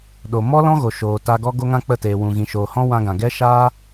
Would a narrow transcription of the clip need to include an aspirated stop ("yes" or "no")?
no